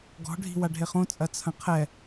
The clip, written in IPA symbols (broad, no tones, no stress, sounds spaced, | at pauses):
ɡ ɔ̤ ɖʱ i̤ w a ɖʱ e χ õ t͡sʼ ɐ t͡sʰ ɐ̃ qʰ ɛ